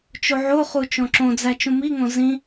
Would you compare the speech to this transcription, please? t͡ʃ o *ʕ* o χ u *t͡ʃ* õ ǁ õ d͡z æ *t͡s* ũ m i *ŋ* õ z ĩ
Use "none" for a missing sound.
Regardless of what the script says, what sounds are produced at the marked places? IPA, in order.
ʕ, t͡ʃ, t͡ʃ, ŋ

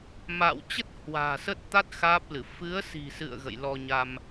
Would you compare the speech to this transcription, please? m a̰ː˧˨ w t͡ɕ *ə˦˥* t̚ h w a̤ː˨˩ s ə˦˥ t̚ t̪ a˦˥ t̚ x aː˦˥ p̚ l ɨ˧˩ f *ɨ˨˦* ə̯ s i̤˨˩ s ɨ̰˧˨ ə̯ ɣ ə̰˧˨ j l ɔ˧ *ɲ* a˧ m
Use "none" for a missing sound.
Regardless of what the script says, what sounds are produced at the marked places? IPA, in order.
ə˦˥, ɨ˨˦, ɲ

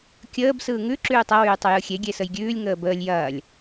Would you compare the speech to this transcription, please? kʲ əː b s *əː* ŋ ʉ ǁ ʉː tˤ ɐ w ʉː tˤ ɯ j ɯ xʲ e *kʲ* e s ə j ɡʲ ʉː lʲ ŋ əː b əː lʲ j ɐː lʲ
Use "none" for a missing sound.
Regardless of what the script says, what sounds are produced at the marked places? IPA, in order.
ɯː, ɡʲ

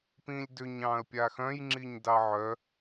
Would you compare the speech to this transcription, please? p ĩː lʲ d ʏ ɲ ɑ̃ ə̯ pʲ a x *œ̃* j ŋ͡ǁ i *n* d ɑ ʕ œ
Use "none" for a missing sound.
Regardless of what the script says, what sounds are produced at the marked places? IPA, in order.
œ̃, ɲ

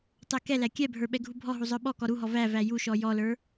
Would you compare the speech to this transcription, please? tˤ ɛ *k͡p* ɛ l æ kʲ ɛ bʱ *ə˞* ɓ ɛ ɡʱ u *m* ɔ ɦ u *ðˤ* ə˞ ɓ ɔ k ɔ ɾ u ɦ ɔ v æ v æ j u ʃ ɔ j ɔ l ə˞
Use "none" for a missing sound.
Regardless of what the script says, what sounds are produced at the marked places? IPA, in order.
k, ə˞, bʱ, zˤ

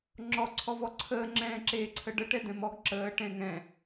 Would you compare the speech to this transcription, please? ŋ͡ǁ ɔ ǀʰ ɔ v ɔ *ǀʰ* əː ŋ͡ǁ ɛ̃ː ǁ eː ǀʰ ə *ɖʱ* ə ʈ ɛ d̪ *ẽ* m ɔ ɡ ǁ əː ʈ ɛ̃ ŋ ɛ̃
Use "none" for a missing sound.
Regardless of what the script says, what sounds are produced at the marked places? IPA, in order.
ǀʰ, ɖ, ɛ̃

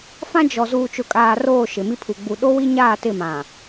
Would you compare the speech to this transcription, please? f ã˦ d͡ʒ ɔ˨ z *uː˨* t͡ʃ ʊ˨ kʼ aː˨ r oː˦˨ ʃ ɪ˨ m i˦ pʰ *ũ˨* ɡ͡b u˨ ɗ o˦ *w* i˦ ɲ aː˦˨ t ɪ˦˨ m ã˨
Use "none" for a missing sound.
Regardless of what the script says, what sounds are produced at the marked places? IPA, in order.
uː˨, u˨, w

